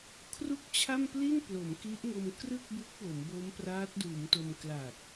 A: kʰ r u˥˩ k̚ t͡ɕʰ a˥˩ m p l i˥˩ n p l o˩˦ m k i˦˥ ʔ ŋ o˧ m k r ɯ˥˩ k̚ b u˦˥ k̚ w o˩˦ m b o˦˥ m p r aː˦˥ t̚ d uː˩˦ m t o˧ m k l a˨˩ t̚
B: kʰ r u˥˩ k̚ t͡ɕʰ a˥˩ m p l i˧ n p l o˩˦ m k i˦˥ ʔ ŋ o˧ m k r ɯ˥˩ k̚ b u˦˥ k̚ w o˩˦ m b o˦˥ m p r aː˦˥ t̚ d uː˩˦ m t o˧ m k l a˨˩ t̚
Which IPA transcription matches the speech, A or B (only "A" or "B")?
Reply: A